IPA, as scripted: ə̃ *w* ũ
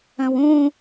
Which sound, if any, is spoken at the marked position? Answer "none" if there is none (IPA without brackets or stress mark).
w